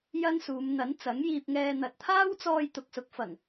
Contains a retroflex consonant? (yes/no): no